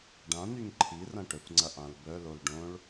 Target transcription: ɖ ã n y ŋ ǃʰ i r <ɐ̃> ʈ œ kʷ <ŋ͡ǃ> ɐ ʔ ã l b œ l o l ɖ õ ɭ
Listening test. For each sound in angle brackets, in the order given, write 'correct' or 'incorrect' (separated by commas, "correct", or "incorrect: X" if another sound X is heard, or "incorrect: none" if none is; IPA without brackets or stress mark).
correct, incorrect: ŋ͡ǀ